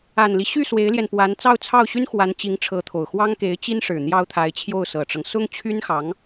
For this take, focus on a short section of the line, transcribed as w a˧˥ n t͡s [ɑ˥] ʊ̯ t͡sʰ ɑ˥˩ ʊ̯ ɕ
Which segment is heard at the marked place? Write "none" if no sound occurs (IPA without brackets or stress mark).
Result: ɑ˥˧